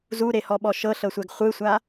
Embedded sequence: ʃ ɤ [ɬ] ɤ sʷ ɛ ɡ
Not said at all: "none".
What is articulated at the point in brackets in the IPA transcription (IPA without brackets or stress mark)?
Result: ɬ